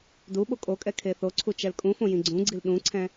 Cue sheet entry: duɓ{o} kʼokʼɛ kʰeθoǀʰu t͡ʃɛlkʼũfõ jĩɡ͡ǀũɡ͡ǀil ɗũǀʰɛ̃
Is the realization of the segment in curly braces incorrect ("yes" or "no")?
no